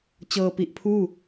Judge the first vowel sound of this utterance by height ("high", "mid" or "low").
mid